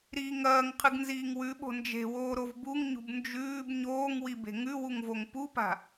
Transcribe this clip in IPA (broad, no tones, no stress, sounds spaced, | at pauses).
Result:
ɾ i ŋ ɐː ŋ qʰ ɨ ɡ n z iː ŋ w ʉ ɓ o̤ n d͡ʒ e̤ w oː ɾ o v b u ŋ ɲ ṳ b n d͡ʒ ʉː b ɲ oː ŋ w i b e̤ ŋ ʉ w u ŋ v o ŋ p u p a̤